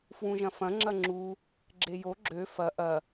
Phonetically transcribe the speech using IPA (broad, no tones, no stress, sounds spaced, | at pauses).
f w ũ ʒ ɐ̃ f ɐ̃ ŋ͡ǁ ɐ ŋ͡ǁ u | ɡ͡ǁ e j o ɡ͡ǁ ø f ɐ ʔ ɐ